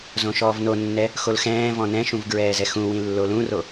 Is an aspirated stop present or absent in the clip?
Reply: absent